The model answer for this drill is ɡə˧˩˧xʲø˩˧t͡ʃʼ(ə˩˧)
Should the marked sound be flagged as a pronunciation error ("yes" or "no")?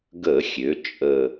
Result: yes